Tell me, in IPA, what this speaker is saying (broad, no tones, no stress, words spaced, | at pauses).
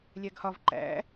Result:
lʲæɡhɒv ǃæ̰